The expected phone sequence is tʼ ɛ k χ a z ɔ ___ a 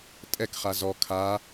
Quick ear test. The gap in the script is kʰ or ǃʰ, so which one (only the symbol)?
kʰ